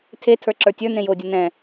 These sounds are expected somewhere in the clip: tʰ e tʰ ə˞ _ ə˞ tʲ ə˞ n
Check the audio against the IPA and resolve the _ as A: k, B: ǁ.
B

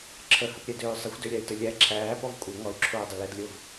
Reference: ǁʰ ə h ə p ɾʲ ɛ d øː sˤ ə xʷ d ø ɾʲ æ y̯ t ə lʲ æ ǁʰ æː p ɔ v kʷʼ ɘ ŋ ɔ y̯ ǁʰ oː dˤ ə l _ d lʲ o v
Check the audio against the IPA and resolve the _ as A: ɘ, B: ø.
A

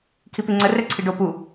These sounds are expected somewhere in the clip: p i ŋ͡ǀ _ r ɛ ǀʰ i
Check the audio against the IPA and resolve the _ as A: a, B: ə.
B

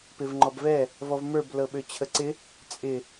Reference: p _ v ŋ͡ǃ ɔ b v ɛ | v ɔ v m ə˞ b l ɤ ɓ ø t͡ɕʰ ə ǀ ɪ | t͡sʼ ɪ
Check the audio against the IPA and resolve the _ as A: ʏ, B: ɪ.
B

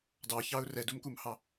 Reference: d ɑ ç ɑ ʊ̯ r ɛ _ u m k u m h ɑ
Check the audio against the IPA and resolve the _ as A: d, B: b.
A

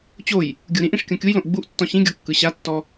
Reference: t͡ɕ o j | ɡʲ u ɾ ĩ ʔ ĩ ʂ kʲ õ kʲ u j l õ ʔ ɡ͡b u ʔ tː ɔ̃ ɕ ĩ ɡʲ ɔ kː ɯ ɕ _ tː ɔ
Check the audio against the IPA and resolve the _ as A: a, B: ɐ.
A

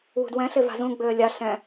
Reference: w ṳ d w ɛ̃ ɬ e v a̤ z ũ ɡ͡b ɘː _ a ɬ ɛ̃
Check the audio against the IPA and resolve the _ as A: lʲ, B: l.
A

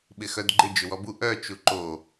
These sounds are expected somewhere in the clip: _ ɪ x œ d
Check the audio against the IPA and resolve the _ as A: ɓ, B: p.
A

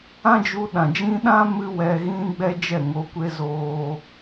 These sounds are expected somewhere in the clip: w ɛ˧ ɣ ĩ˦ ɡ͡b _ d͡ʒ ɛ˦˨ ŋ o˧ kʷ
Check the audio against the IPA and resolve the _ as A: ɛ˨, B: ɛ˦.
B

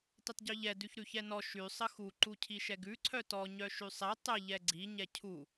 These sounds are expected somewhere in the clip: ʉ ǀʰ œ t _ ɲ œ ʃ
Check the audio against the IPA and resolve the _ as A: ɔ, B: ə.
A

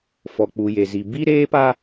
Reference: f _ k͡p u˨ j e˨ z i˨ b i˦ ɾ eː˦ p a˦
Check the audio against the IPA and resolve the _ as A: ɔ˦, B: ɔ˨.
B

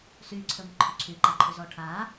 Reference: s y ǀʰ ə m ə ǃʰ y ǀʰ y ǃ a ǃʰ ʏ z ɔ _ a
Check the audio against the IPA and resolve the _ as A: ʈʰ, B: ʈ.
A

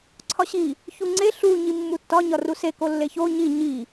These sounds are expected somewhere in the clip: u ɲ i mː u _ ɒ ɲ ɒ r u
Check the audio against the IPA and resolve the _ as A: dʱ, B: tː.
B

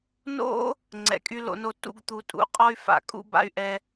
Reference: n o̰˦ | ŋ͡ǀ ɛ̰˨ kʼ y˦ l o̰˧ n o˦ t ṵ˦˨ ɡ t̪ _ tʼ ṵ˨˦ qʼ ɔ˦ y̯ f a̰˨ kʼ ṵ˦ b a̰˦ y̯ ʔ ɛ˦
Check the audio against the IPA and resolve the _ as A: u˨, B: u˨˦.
B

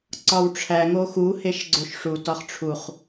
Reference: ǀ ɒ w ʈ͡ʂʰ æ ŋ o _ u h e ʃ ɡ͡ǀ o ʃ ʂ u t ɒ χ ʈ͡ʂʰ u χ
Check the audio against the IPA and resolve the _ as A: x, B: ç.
A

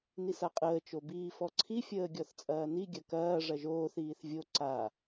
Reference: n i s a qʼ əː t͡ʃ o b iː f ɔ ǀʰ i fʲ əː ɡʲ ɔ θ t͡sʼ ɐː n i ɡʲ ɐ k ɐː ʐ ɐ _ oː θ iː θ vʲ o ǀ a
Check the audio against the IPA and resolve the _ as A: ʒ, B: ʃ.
A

